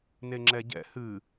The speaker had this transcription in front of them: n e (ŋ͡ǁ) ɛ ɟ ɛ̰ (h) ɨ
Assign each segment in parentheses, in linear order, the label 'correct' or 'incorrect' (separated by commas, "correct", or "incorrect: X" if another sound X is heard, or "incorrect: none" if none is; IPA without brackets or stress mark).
correct, correct